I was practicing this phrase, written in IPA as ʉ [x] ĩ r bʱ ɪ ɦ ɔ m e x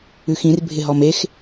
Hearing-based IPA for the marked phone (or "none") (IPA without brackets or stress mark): x